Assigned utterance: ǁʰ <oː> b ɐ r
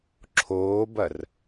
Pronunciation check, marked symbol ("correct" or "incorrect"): correct